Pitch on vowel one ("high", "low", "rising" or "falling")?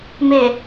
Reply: low